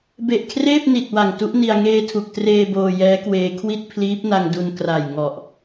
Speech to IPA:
b e˨˩ ʔ kʰ r eː˥˩ p̚ n i˨˩ t̚ w a˨˩ ŋ t u˦˥ ʔ n i˧ a̯ ŋ eː˧ tʰ u˨˩ k̚ t r eː˧ b oː˧ j ɛː˦˥ k w eː˧ kʰ w i˥˩ t̚ pʰ l iː˦˥ p̚ n a˧ ŋ d u˧ n k r a˨˩ j ŋ ɔ˨˩ ʔ

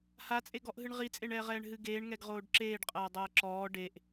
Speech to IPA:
h a t͡sʼ e ɡ ɔ ʔ ɦ ɨ ɳ ʁ i t͡sʼ e ɳ ɛː ʁ ɛː ɳ ɦ ɨ ɡ eː ɳ ŋ ɛ ɡ ʁ oː ɖ ǁ eː ɖ qʼ ɐː dˤ ɐː ǁ ɔː ɖ e ʔ

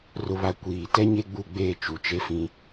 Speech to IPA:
r ʊ˨ β a˨ kʷ iː˨ t ɛ˦ ɲ e˦ ɡ͡b u˦˨ ɡ͡b eː˦˨ t͡ʃ u˨ t͡ʃ e˦ f ĩ˦

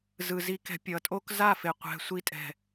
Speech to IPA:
z ɯ˨ z i˧ k ɛ̤˧ pʲ ʌ˨ tʼ o˦ k z a˦˨ f e˨ qʷ ɛ̤˧ sʷ i˧ tʼ ɛ̤˨

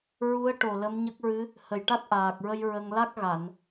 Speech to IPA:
ɹ u˧˥ ə̯ ʈ o˨˩ l ə˧˥ m ɲ ə˦˥ k̚ ɹ ɨ˧˥ | h ə˨˩ j ʈ a˦˥ t̚ ʔ aː˨˩ k̚ ɹ ə˧ j ɹ ə˧ ŋ l a˦˥ k̚ ɣ a˨˩˨ n

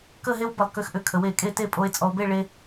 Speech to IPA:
k ə˥˧ ɦ e˥ w b ə˧˩ lˠ k ʏ˧ x ʔ ʏ˧ kʰ ə˩˧ w e˧˩ kʼ e˥˧ t e˥˧ pʼ o˧ e̯ t͡sʼ ɔ˧ o̯ b e˥˧ ɭ e˧

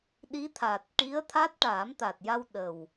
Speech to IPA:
ɗ i˧˥ t̪ʰ a˨˩ t̚ ʈ i˧˥ ə̯ t̪ʰ a˦˥ t̚ ʈ aː˨˩˦ m t̪ a˨˩ t̚ j a˧ w ɗ ə˨˩ w

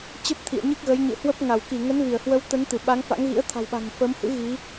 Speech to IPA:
t͡ɕ ə˦˥ p̚ t̪ʰ ḭ˧˨ ə̯ ɲ ɨ˦˥ k̚ ɣ ə˨˦ j ɲ ɨ̰˧˨ h w ə˦˥ p̚ ŋ a˧˩ w k i˧˩ ŋ ə˨˦ n v i˧˩ ə̯ h w ə˨˦ w t̪ ə˨˦ n t̪ ɨ˧˩ ɓ a˨˦ ŋ f a̰˧˥ ŋ ɣ ḭ˧˥ ə̯ t̪ʰ a̤˨˩ w ɓ a̤˨˩ ŋ f ə˨˦ m h ɨ̰˧˥ ɣ i˨˦

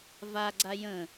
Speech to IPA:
v a ɡ͡ǀ a j ə̃

